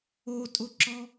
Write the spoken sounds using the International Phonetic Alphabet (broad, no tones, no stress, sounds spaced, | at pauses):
o tʼ ʊ ǁ ɔ